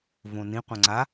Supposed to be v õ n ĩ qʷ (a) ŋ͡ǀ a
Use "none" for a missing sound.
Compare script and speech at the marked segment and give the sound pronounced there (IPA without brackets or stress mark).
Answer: ã